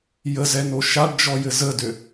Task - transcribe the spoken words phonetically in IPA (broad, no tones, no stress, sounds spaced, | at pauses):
j ə z ɛ n o ʃ a ɖ d͡ʒ ɔ j ɘ z ə d ø